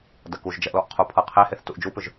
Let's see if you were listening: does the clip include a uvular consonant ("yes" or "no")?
yes